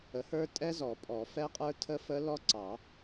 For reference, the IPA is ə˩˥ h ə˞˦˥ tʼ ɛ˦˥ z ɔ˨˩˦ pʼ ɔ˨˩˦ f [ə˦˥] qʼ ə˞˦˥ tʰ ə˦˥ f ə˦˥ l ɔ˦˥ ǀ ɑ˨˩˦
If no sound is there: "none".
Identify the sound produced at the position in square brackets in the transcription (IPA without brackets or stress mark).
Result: ɛ˦˥